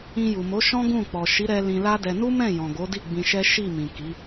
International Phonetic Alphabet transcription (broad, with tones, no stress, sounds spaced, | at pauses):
ĩ˧ j u˨ m o˨˦ ʃ ɔ̃˦ ɡ ũ˦˨ k͡p ɔ˨ ʃ i˨˦ ɾ ɛ˧ l ĩ˧ l a˦ d ɛ˧ n u˦ m ɛ̃˦˨ j ɔ̃˨ ɡ o˨˦ d i˦˨ ɡ͡b ĩ˧ ʃ ɛ˦ ʃ i˦˨ m ĩ˨ k i˨˦